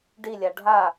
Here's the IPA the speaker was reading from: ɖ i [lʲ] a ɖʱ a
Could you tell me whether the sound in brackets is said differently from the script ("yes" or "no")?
no